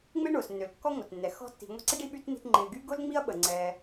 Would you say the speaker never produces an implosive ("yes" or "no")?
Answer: no